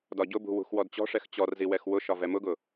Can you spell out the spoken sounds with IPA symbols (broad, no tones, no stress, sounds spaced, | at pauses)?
d ɒ ɟ ʊ b ṳ w ṳ x w ɔ d t͡ɕ ɔ̤ ʂ ɛ x t͡ɕ ɔ r z i w ɛ x w ʊ ʃ ɒ v ɛ m ʊ ɡ ʊ